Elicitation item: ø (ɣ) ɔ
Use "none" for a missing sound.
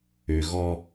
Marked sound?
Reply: ɣ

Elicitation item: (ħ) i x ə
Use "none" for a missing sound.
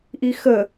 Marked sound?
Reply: ʔ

